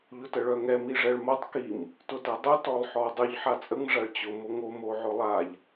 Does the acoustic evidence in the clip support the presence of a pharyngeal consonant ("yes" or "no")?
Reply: yes